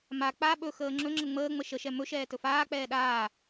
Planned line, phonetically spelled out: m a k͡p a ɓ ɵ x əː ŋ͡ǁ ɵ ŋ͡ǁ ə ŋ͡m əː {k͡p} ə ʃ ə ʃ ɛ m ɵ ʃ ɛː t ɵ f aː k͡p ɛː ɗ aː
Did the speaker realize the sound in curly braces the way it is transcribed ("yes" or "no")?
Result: no